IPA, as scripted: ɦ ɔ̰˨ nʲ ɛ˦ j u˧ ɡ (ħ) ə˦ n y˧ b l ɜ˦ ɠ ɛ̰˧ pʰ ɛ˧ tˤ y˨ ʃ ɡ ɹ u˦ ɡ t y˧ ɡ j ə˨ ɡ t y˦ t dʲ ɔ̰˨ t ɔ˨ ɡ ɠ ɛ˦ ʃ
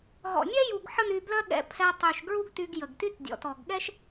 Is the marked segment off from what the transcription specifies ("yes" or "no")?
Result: no